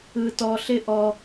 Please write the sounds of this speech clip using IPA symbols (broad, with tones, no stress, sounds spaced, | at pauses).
ɯ˧ t ɔ˧ ɬ ɪ˦ ʔ ɔ˧